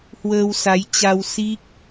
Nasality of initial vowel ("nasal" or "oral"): oral